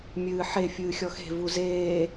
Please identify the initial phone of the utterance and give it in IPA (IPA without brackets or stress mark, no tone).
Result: mʲ